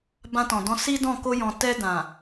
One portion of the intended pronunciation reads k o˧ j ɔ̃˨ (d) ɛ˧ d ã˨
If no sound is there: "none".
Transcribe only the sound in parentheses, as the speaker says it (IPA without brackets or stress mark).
t